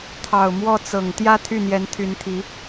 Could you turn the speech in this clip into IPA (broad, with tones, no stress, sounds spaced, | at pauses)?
t̪ʰ ɑ˨˩ ʊ̯ m w ɔ˥˩ t͡s ɤ˨˩ ŋ t̪ j ä˥˧ t̪ʰ y˥˩ n̪ j ɛ˧˥ n t̪ʰ y˧˥ n t̪ʰ i˧˥